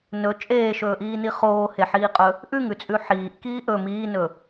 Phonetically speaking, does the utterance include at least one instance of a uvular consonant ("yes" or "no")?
yes